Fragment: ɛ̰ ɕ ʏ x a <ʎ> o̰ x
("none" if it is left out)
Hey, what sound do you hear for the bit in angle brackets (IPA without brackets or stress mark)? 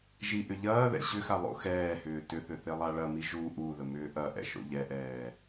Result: lˠ